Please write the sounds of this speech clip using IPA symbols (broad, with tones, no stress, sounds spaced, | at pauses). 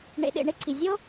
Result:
ɳ ḛ˧ ɗ ḛ˧ ɳ e˥ ǀʰ i˩ zʲ o˥